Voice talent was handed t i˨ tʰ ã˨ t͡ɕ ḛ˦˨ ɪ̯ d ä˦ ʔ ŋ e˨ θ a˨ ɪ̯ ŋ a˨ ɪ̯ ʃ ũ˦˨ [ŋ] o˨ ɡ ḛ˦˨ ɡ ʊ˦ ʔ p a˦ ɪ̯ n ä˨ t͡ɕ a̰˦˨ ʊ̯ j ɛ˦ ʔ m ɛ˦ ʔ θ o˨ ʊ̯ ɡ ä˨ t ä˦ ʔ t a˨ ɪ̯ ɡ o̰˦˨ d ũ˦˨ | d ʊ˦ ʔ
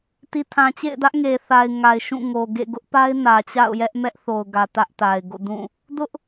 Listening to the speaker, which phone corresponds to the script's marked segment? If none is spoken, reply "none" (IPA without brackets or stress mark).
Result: ŋ